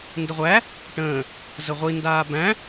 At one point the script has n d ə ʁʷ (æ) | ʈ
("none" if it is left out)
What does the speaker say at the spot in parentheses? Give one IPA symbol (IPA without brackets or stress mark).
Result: æ